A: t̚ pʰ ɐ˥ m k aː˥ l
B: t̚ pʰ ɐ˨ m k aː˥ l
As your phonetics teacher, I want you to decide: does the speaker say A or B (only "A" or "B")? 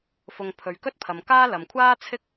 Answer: B